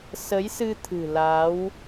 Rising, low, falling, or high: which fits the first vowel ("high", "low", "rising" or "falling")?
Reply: rising